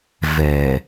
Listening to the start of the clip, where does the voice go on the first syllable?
low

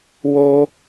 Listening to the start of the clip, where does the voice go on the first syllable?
high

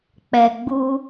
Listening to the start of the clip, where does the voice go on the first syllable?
low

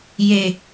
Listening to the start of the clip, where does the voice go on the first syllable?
low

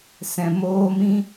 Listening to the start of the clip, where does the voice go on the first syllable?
low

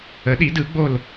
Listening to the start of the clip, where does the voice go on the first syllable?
rising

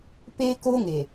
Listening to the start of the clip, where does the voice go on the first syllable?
high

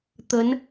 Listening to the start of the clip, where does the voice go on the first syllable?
rising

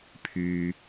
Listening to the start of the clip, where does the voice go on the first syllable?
low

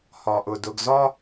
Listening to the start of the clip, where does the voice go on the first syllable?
low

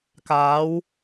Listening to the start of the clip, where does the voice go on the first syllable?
rising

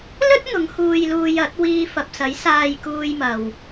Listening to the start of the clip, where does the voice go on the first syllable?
high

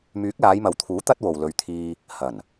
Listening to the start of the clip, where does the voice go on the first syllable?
rising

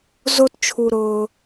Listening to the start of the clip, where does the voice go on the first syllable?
high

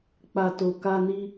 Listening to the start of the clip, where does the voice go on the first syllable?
low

